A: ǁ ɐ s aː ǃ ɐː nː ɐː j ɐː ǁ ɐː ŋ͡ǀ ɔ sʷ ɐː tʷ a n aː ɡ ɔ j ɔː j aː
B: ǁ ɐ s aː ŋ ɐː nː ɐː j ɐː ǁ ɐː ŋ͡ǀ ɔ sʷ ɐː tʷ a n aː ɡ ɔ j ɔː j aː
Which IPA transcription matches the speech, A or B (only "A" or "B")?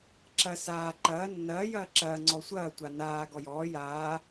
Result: A